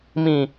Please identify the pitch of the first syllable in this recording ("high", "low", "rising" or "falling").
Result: low